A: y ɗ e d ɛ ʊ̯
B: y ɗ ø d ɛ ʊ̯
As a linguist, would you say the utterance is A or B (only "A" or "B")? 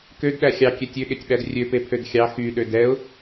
B